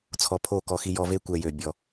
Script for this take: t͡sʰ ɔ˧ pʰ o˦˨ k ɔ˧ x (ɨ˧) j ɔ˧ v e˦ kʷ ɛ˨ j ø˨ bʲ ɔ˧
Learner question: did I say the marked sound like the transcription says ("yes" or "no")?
no